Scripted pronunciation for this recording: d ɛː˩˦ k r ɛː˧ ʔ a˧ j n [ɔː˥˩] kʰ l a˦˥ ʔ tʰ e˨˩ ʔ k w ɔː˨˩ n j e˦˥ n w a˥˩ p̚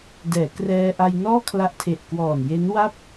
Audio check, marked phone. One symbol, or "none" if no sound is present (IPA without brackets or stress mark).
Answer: ɔː˥˩